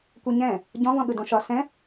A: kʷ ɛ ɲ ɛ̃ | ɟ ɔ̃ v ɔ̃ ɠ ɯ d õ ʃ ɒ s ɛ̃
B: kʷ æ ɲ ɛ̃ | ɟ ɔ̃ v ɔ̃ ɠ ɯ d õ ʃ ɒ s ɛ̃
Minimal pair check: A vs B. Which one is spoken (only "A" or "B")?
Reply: A